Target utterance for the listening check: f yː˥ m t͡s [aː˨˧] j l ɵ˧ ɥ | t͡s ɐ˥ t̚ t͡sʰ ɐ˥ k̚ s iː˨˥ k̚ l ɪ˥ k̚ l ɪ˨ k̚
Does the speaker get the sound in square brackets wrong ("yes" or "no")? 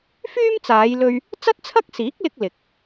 no